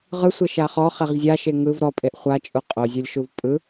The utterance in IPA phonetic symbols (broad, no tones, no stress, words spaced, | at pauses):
ʁɯsʷeʃa χɔχeʁ zʲaʃe ŋɯv ɾɔpʼeʔ χʷat͡ʃʼu qʼozʲulʲʃuv pʼɯ